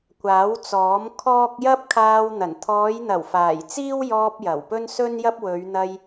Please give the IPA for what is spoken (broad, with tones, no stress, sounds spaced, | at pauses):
kʷ aː˨˥ w t͡s ɔː˨˥ m kʰ ɔː˥ k̚ j ɐ˥ p̚ kʰ aː˧ w n̪ ɐ˨˩ n t̪ʰ ɔː˨˧ j n̪ ɐ˨˩ w f aː˨˩ j t͡s iː˥ w j ɔː˧ p̚ j ɐ˨˩ w p ɵ˥ n s ɵ˥ n j ɐ˥ p̚ w ɵ˨˧ ɥ n̪ ɐ˧ j